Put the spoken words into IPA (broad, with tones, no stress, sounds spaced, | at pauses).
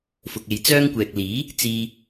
f ʊ˨ k̚ e˨ j t͡s œː˥ ŋ kʷ ɛː˨ k̚ l iː˨˥ | t͡s iː˧